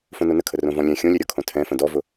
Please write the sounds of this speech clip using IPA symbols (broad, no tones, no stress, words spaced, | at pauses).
fõnonəkʰə rõvɔ̃lʲɛ̃ xʲõlʲɛɾʲɒkʰõ tʰɛ̃fə̃ dɔvʊ